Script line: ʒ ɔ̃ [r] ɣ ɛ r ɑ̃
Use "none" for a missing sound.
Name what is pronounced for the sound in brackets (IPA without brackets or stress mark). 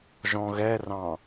none